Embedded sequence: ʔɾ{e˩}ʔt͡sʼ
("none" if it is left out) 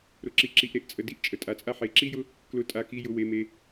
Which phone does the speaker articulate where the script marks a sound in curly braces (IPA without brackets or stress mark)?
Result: e˩